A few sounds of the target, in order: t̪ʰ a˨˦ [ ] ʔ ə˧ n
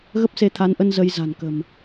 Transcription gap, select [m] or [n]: n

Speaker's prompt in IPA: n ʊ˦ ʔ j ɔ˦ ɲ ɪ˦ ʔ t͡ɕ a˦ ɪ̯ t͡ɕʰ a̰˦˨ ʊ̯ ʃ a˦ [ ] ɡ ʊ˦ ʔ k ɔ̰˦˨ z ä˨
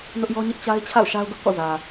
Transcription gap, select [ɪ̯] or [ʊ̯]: ʊ̯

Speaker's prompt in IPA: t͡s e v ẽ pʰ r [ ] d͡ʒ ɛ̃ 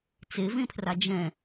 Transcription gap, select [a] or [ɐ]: a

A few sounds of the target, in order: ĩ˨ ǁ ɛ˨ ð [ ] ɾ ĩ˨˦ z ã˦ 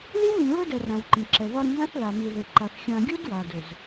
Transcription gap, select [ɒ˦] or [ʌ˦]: ɒ˦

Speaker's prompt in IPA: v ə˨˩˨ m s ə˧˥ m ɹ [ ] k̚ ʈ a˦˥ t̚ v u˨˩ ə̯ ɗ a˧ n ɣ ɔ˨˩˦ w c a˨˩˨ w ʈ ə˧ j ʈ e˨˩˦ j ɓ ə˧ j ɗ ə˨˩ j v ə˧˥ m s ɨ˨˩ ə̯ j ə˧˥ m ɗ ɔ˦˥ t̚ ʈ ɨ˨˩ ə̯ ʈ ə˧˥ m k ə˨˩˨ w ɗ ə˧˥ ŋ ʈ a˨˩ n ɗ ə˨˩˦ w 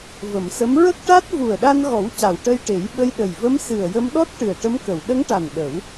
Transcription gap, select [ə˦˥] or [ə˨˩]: ə˦˥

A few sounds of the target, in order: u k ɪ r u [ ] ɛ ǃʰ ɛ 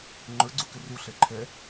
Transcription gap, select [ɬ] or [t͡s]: ɬ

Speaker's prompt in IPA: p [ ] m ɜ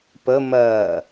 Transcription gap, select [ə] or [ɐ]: ə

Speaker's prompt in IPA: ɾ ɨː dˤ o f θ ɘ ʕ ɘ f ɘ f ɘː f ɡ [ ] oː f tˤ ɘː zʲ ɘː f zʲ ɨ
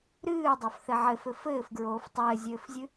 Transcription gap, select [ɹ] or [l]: ɹ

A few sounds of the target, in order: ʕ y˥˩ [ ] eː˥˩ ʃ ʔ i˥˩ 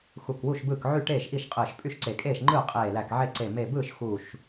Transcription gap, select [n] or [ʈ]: ʈ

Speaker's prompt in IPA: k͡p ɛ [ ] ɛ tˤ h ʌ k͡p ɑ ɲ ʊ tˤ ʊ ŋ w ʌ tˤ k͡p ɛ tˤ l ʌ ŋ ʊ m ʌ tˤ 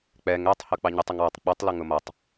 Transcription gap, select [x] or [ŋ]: ŋ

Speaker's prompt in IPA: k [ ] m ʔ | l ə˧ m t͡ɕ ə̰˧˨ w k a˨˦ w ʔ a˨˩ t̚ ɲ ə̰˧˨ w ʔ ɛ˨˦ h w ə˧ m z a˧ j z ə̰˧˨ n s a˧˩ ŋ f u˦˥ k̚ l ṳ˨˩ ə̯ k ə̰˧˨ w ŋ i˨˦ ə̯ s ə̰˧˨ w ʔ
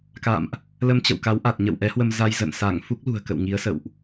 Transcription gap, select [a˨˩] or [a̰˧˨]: a̰˧˨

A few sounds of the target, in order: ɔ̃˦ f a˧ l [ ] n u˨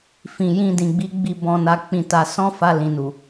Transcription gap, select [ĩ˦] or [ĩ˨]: ĩ˨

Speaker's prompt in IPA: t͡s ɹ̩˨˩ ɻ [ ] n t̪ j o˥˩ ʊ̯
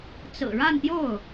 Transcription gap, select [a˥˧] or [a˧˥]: a˥˧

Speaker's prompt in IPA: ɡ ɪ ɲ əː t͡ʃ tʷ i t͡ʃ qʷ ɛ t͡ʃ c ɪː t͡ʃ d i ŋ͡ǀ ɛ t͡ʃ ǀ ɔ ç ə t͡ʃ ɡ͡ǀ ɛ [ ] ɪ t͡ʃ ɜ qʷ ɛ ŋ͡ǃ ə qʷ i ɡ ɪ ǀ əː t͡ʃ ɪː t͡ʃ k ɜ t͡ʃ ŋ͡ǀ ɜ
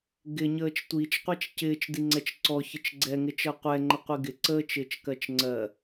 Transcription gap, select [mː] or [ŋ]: ŋ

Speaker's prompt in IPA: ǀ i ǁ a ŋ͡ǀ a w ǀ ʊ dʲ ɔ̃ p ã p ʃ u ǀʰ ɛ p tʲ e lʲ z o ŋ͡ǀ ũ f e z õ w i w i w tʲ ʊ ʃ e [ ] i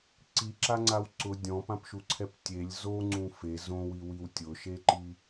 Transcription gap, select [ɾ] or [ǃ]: ǃ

